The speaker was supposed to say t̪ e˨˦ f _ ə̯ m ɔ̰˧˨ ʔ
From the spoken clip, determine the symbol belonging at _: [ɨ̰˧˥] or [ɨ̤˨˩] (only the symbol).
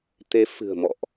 ɨ̤˨˩